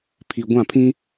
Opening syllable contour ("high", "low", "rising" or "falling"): low